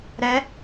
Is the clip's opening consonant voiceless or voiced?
voiced